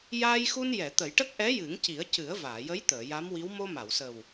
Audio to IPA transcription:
j aː˧ j x u˧ n j ɛ˨˩˨ t̪ ə˨˩˦ j ʈ ə˦˥ k̚ ʔ ɛ˧˥ j ɨ˨˩˦ ŋ c i˨˩˦ ə̯ c ɨ˨˩˦ ə̯ v aː˨˩˨ j ə˧˥ j t̪ əː˨˩˨ j a˧˥ m w i˧˥ w m o˧ m a˨˩˨ w s ə˨˩ w

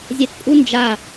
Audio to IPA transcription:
zʲ ɛ t pʼ u n d͡ʒ a

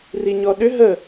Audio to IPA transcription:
r i ɲ ɔ ɗ ʏ ɦ ə

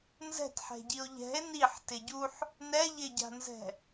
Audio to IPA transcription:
n z ɛ̤ t ħ ɛ̤ ɟ i o̯ ʎ ɛ̤ e̯ n i ħ t ɪ ɟ u ħ | n ɛ ʎ ɪ ɟ a̤ n z ɛ̤

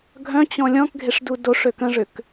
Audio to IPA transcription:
ɡʱ œ̃ t͡ɕ ɔ̃ lʲ ɔ̃ k ɡʱ e ʂ d u d o ʂ ø k ə̃ ʐ ʏ k

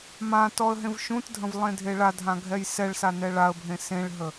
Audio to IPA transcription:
m ã t ɔ ə̯ ɦ ẽ v ʃ ũ t dʱ ə̃ v lˠ ẽ dʱ e ɭ a dʱ ã ɡʱ ɛ j s ɛ ɭ s a n ɛ ɭ a ə̯ bʱ ẽ s ẽ ɭ ɦ ə

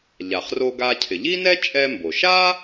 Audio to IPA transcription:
ʎ a˩ χ r o˧ ɡ a˧ cʰ ɪ˩ ʎ i˥ n ɛ˥ t͡ʃʼ ɛ˧ m b o˩ ʃ a˥

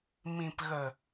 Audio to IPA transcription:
m ĩ˨ p ɣ ə˨

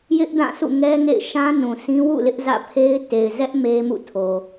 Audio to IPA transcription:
j ɪ˦ ʔ d ã˦˨ s ṵ˦˨ ŋ ɛ˦ ŋ ḛ˦˨ ɪ̯ ʃ ã˦ n ũ˨ sʰ ĩ˦ w ṵ˦˨ l ɪ˦ ʔ z ä̰˦˨ pʰ e˦ ɪ̯ t e˨ ɪ̯ z ɛ˦ ʔ m e˦ m ṵ˦˨ tʰ o˨

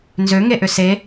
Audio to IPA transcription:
n z ø ŋ e ʔ ʏ s e

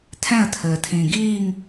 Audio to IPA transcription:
tʰ ɛ̃ ə̯ tʰ ɘː tʰ ĩː ɡ iː ŋ

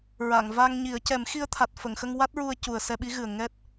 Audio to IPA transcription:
ɹ a˨˩˨ ŋ v a˧ ŋ ɲ i˨˩˦ ə̯ c ɛ˨˩˦ m x i˧ ə̯ t̪ʰ a˨˩ t̚ f ə˨˩˨ ŋ x ə˧ ŋ w a˦˥ t̚ ɹ u˧ ə̯ c u˨˩ ə̯ s ɛ˧ ɓ i˧˥ ɣ ɨ˨˩ ə̯ ŋ ɛ˦˥ t̚

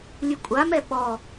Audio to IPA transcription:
lʲ ɨ kʷʼ a m ɛ ɓ ɔ

